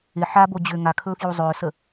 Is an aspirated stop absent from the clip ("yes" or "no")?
no